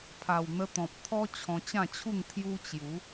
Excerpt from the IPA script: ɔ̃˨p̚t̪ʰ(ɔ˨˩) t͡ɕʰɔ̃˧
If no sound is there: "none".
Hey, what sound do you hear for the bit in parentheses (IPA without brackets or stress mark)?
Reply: ɔ˦